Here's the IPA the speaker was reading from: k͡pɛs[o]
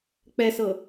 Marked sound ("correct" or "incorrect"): incorrect